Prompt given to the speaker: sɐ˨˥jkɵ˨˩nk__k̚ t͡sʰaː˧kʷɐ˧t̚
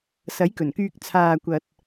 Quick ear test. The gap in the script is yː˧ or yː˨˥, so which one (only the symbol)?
yː˧